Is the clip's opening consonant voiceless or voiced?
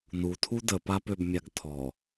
voiced